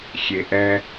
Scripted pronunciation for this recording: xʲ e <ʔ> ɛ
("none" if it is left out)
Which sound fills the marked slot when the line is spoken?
ʔ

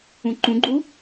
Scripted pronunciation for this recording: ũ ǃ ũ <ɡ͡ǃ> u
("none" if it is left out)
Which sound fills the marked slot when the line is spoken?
ɡ͡ǃ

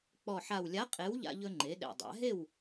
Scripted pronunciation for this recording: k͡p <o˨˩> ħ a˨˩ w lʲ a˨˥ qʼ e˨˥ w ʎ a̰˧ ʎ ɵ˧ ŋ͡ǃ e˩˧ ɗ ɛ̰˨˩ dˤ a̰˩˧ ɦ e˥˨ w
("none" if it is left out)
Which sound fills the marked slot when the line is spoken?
ɔ˨˩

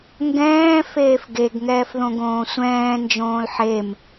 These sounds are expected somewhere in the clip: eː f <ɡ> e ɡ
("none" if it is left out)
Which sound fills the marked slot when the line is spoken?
ɡ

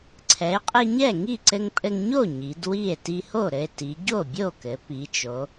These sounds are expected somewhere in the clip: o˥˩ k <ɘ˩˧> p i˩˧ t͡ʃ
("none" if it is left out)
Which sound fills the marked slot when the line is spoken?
ɘ˩˧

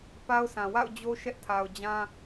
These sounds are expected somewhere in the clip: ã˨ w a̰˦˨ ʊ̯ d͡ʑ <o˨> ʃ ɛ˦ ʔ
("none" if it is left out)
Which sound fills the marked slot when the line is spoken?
o˦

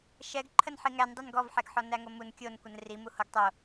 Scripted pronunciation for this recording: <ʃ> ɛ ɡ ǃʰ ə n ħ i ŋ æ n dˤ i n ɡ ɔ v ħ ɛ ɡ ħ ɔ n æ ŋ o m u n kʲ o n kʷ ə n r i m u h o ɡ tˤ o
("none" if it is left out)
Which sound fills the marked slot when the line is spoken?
ʃ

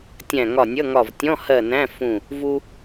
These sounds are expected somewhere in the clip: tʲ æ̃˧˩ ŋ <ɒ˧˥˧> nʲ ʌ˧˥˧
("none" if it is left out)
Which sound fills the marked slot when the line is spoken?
ɒ˧˩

